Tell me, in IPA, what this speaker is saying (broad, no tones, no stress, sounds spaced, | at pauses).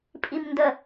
pʼ i m n d ə